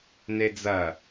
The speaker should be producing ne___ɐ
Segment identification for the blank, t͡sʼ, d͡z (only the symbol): d͡z